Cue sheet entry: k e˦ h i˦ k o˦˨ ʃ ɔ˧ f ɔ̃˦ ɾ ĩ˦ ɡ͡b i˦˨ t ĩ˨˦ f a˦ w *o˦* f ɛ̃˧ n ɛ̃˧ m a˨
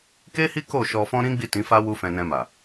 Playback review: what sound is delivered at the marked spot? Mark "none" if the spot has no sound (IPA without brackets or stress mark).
u˦